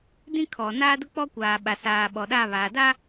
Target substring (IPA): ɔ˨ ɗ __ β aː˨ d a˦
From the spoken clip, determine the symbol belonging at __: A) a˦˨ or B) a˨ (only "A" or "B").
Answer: A